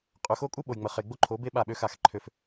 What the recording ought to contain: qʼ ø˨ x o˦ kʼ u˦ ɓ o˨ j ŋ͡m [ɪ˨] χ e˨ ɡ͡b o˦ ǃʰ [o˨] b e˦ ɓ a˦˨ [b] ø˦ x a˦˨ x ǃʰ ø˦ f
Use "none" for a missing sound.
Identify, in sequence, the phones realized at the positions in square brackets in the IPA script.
ə˨, o˨˦, ɓ

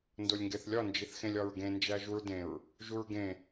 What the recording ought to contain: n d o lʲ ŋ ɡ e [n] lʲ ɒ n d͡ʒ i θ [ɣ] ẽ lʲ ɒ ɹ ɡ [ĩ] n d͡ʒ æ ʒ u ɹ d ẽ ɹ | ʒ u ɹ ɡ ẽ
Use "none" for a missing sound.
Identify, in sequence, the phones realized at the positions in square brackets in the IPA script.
θ, x, ẽ

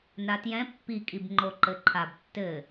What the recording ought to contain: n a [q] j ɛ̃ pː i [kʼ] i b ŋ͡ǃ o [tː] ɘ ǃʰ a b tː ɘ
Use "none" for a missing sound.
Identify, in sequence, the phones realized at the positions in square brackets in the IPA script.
t, kʼ, ǃ

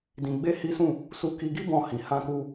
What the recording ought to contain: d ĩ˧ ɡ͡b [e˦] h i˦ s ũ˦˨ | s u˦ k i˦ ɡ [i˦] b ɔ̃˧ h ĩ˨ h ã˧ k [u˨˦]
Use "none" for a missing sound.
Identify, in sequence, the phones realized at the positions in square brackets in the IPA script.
e˦, i˦, u˧

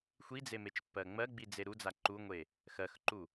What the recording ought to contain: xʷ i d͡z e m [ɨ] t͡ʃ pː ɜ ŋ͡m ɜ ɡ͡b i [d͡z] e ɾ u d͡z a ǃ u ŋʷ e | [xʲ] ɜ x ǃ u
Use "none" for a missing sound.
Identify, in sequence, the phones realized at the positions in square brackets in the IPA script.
e, d͡z, x

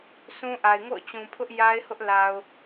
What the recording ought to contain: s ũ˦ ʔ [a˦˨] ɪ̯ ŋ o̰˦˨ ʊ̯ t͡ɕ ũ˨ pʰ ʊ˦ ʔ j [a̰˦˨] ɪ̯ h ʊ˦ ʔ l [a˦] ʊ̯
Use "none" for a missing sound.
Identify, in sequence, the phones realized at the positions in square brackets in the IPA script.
a˨, a˦, a˨

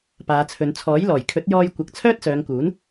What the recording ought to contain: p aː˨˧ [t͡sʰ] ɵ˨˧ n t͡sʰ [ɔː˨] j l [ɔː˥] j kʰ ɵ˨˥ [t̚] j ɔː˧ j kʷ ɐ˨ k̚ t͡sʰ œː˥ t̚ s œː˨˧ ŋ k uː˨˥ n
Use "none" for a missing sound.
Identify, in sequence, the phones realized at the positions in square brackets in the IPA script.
t͡sʰ, ɔː˨˥, ɔː˨˩, t̚

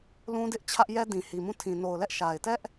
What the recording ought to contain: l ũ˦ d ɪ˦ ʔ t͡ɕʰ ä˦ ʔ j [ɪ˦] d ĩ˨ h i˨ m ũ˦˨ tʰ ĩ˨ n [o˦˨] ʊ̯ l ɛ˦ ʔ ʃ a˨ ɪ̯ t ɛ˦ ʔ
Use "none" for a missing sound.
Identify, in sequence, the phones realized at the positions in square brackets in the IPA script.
ɛ˦, o˨

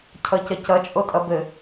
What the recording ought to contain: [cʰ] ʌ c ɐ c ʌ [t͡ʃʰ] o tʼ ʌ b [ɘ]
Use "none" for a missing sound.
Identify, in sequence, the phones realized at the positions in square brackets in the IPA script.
cʰ, t͡ʃʼ, ɘ

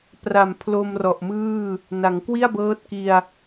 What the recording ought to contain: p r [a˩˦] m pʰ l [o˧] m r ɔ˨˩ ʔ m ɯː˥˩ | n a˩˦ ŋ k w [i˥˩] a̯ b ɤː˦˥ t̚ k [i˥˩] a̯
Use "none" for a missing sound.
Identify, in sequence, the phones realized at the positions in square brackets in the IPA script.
a˨˩, o˧, i˥˩, i˧

